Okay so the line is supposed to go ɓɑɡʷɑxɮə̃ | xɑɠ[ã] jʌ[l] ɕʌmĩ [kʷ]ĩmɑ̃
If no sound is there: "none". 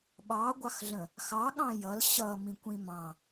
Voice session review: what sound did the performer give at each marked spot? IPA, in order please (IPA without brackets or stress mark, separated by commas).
ɑ̃, l, kʷ